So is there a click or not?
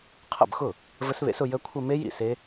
no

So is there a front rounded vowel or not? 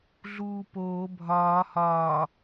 no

